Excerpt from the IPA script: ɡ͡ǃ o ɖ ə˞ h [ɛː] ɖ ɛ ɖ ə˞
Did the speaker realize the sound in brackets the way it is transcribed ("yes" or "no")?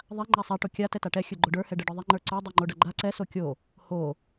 no